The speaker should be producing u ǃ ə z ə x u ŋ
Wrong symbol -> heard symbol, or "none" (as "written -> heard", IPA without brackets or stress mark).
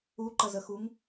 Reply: none